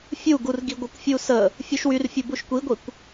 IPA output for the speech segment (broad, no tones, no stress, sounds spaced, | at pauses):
fʲ u ɡ u r ɡ i ɡʷ ə kʷ fʲ u s ə | fʲ u ʃ w y r fʲ u b u ʃ kʷ i ɡʷ i kʷ